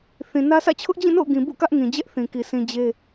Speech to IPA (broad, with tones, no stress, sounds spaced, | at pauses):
θ ĩ˨ n ä˦ sʰ ä̰˦˨ t͡ɕʰ ʊ˦ ʔ d͡ʑ ĩ˦˨ n o̰˦˨ ʊ̯ ɡ ĩ˨ b ṵ˦˨ k ä˦ ʔ ŋ ĩ˨ d͡ʑ ɛ˦ ʔ θ ĩ˨ k i˨ sʰ ĩ˨ d͡ʑ e˦